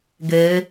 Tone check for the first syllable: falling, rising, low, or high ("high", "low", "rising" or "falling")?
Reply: rising